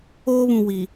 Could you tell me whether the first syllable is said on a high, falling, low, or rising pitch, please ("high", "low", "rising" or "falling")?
high